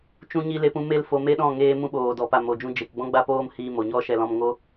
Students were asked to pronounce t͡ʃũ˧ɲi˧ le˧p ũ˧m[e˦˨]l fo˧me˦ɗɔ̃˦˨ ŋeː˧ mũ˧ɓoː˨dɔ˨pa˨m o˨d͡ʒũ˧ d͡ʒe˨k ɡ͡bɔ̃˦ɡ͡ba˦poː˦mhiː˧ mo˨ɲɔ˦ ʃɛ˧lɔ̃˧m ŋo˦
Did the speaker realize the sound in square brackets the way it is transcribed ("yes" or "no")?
yes